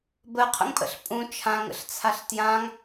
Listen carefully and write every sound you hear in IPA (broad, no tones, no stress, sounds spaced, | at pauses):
b ə qʰ ə̰ ŋ pʼ ə̰ ɬ pʼ ũ t͡ʃʰ ã ŋ ə̰ ɬ t͡sʰ a ɬ t j ã ŋ